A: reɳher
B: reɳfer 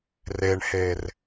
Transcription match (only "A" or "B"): A